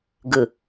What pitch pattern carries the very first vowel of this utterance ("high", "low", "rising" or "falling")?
low